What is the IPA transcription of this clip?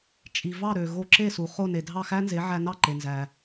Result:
t͡ʃʼi˩vɑ˥˩ ɾø˩ɣo˧ǁe˥˩ su˩ χo˥˩ne˩ dʱɑ˥˩xæ˥nze˩˥ ʕæ˧nɑ˥˩ǃe˩nzæ˩

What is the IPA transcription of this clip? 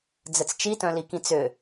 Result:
d͡zɘt͡st͡ʃitœ̃li kĩt͡sʏ

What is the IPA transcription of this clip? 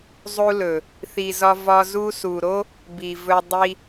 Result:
zˤu˧lɵ˨ | θi˨zɒ˧ vɒ˧ zu˧su˨ɾo˦ | bi˨vɵ˧ dˤi˧

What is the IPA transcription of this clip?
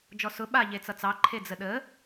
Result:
d͡ʒɔsʊ ɓa ʎet͡sʌt͡sɑ ǃʰed͡zəɗə

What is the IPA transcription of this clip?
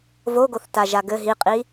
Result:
voɡoθtaʒa ɡɘ ɦiqʼi

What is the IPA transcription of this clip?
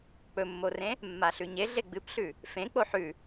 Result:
k͡pɵmːorẽ | mːaɬʉɲeɮe ɡ͡bɨpɬʉ | fẽ k͡poħʉ

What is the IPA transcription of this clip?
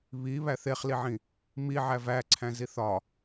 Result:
βi βæθeχliʕĩ | miʕæv æǀʰæ̃ ziθɒ

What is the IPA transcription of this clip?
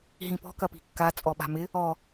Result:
ɦĩpɔ̤ kɐpi̤kːa t͡sʼɔɓa̤mɪ | ɔ

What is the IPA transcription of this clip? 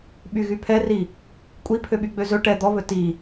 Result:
ɓyɣypʰɛri | kʷʼipʰøɓy ɡ͡bøzɵ ʈɛ d̪ɔβɵ ti

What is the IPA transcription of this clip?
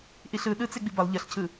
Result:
ʔiɬɯ ɗɯt͡se ɡ͡bibʌlˠ ʎʌɬcʰɯ

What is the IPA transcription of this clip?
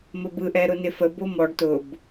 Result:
məbɯʔɛɾʊ nɪfə bomɔɖ tʊb

